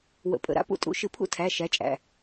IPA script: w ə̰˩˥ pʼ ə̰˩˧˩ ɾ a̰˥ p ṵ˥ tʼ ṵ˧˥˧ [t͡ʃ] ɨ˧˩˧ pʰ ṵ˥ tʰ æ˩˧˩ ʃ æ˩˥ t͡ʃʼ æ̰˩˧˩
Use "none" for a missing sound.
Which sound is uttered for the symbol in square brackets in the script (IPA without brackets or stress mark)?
ʃ